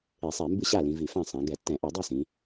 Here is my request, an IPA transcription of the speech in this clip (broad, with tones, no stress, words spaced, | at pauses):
e˧˩˧sˤɛ˧˩˧mbɨ˥˨ɕa˥˨ lĩ˩˧vi˧˩˧fã˥˨ sˤã˩˧ ɡɛ˧˩˧tːɛ̃˧˩˧ʔɨ˧˩˧ dˤi˥˨sĩ˩˧